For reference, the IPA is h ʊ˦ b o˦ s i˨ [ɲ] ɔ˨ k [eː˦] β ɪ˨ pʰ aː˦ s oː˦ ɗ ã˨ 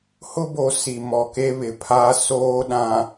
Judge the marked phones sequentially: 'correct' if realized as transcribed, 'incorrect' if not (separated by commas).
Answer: incorrect, incorrect